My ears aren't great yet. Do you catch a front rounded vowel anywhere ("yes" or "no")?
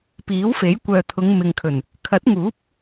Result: yes